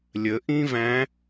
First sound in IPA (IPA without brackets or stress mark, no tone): lʲ